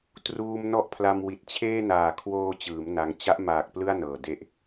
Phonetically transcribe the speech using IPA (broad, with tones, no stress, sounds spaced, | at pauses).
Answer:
t r uː˧ m n ɔ˦˥ ʔ pʰ l a˧ m w i˨˩ t̚ t͡ɕʰ eː˥˩ n aː˨˩ kʰ w oː˧ t͡ɕ ɯː˩˦ m n a˧ ŋ t͡ɕ a˦˥ ʔ m aː˨˩ k̚ p l ɯ˥˩ a̯ n ɤː˨˩ d e˦˥ ʔ